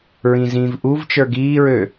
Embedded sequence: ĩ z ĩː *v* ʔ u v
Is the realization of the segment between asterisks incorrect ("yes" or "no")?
no